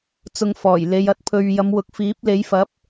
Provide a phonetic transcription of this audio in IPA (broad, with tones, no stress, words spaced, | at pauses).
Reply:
t͡sʊ˧ŋfɔː˨˩j le˨˧jɐ˧t̚pʰɵ˧ɥ jɐ˨˧mwʊ˨˥k̚fiː˨˥p̚ le˨˥jfɐ˨˥p̚